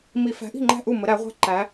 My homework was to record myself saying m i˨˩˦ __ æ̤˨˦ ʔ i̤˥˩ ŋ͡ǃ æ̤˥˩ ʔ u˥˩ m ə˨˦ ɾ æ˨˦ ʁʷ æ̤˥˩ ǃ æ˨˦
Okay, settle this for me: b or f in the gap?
f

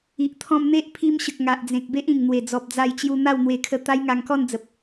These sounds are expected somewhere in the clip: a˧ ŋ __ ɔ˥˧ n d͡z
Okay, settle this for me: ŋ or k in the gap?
k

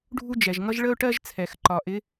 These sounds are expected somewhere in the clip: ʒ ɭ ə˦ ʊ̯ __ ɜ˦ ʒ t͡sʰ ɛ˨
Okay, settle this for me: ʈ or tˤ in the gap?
ʈ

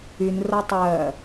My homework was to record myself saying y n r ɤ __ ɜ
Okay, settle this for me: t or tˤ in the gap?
tˤ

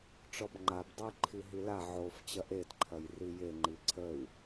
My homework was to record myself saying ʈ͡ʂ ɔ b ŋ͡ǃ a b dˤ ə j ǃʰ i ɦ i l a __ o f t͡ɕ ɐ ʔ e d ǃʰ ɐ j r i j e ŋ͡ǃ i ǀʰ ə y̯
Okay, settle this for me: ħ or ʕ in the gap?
ʕ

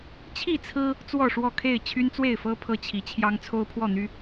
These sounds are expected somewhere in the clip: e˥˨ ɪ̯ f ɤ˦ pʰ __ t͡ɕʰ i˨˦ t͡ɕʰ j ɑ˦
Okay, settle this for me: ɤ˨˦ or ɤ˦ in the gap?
ɤ˦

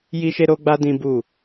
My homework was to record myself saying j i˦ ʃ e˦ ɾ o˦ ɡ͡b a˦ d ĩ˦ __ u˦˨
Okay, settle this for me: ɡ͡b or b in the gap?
b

